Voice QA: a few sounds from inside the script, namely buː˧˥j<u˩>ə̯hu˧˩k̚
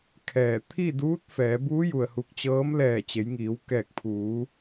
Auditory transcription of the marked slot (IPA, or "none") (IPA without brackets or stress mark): u˩